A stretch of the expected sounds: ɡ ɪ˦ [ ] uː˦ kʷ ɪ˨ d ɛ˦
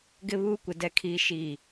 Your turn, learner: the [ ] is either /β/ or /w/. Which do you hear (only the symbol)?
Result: β